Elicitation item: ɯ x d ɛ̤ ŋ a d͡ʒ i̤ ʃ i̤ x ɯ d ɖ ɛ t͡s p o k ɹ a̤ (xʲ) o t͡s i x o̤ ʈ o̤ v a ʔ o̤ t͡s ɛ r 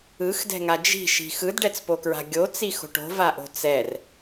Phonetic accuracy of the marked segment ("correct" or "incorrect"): incorrect